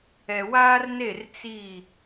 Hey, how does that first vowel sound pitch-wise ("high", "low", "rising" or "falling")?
low